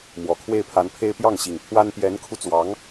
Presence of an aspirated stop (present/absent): present